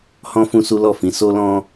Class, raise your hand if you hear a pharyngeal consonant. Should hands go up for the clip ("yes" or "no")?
no